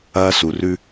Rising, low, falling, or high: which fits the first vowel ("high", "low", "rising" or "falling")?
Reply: high